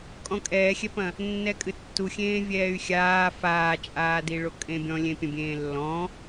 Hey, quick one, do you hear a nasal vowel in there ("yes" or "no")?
yes